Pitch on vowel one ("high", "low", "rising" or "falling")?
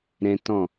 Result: high